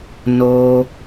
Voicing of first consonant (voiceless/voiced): voiced